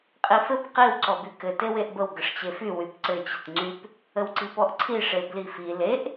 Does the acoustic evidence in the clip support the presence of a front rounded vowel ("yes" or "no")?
yes